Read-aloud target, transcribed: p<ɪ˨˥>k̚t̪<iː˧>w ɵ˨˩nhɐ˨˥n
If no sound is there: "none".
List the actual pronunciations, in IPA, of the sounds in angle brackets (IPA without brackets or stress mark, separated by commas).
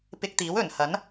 ɪ˧, iː˨˥